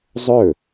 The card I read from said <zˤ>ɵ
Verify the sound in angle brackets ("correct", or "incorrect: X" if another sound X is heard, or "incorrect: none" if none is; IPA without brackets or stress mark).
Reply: correct